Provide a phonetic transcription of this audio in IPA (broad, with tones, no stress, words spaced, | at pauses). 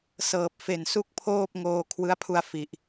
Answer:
sɤː˨˩p̚fe˨˩nsu˦˥k̚ pʰoː˥˩p̚ ŋoː˧kʰwɯ˦˥a̯pʰu˧a̯ fi˨˩ʔ